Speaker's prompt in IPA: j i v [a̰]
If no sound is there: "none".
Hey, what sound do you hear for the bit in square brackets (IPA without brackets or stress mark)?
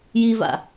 a̰